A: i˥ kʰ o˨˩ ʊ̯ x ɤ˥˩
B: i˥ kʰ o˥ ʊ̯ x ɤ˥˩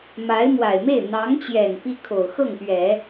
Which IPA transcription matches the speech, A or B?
A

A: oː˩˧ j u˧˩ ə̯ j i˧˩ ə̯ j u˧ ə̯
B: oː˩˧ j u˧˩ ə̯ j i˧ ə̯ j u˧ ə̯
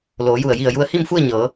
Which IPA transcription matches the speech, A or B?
A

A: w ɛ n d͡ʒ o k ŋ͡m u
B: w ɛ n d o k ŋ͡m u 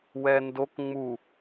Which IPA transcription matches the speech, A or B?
B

